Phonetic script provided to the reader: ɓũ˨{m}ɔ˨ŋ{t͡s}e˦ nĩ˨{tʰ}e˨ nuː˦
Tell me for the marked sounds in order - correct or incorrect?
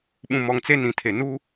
correct, correct, correct

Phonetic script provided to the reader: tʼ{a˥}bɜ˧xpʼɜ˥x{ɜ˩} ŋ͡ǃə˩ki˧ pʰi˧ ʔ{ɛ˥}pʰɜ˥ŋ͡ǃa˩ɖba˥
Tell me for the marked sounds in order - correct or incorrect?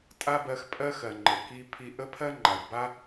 correct, correct, incorrect: ə˥

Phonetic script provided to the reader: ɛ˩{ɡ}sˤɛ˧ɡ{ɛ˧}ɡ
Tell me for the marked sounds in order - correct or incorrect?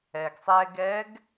correct, incorrect: ɛ˧˥

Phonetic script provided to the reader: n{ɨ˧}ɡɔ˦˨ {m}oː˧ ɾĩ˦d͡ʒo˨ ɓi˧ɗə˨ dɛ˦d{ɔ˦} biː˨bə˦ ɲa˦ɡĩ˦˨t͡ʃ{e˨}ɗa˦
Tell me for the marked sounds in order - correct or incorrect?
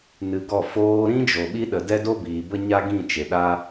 correct, incorrect: f, incorrect: o˦, correct

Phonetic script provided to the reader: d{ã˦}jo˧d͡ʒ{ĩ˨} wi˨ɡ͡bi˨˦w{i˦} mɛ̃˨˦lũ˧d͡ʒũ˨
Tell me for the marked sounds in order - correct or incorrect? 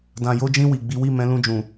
incorrect: ã˨, incorrect: ĩ˧, incorrect: i˦˨

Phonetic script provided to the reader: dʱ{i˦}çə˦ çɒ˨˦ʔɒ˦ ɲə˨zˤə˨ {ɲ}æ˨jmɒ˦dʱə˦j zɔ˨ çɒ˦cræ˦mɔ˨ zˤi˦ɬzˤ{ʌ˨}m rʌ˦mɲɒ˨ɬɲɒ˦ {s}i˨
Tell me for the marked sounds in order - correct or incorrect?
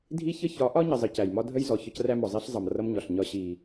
correct, incorrect: c, correct, incorrect: ɕ

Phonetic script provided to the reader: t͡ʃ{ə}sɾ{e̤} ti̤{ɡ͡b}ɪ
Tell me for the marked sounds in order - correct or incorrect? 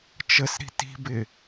correct, incorrect: i̤, incorrect: b

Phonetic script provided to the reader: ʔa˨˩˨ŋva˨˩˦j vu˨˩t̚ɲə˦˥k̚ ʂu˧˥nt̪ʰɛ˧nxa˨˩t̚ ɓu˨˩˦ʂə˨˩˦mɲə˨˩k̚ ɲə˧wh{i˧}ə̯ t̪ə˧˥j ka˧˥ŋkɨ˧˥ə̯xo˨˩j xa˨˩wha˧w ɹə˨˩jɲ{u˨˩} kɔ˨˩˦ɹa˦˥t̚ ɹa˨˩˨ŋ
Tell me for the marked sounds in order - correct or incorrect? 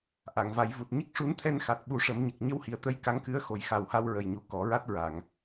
incorrect: i˨˩, correct

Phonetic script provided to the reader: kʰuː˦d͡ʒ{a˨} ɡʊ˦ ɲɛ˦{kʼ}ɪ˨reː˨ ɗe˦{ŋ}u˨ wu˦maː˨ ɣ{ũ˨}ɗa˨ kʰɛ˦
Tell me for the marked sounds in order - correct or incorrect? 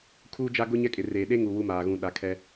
incorrect: a˦, correct, correct, correct

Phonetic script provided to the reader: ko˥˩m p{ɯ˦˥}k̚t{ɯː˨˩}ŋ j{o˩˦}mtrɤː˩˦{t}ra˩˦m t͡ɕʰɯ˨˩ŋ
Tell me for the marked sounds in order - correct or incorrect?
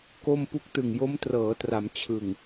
incorrect: u˦˥, incorrect: ɯ˨˩, incorrect: o˦˥, correct

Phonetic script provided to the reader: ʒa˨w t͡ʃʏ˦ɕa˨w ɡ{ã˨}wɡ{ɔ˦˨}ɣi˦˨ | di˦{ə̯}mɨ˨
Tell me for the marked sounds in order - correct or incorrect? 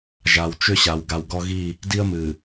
incorrect: a˨, incorrect: ɔ˦, correct

